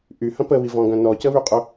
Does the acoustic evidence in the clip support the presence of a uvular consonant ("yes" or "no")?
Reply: yes